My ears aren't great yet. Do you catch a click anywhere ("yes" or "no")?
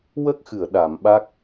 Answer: no